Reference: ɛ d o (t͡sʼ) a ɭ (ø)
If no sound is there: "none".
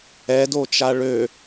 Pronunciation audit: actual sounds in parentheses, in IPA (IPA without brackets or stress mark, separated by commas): t͡ʃ, ø